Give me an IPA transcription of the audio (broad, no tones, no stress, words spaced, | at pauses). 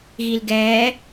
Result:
ɣilɡɛː